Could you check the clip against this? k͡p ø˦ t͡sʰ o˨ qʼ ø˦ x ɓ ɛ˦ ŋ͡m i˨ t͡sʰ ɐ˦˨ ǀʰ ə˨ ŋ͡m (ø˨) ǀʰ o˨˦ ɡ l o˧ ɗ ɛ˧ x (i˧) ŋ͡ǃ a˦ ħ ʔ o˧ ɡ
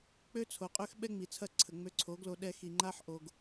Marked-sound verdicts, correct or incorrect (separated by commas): incorrect, incorrect